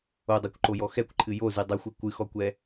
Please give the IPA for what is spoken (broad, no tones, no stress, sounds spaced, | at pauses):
o dˤ ɛ kʷ ǃ o j ɔ x ɛ kʷ ǃʰ ɨ j o z ɨ dˤ ɨ xʷ ɛ kʷ ɨ x ɔ kʷ ɛ